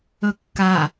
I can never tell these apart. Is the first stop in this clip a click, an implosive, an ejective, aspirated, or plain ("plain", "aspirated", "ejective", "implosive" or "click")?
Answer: plain